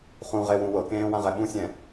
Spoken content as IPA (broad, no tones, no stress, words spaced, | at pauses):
χũʁewũ wɤkẽːwãʁɛ ɓũsʲɛ̃